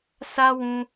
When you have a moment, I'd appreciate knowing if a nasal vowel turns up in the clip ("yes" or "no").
yes